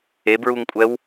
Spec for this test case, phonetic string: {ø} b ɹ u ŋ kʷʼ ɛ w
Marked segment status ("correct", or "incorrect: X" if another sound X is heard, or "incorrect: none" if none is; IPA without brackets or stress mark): incorrect: e